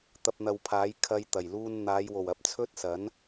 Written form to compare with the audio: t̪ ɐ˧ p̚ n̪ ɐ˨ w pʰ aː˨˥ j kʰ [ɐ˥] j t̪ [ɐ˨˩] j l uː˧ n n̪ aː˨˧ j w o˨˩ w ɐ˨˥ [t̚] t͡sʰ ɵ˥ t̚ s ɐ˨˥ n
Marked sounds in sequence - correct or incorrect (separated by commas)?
correct, correct, incorrect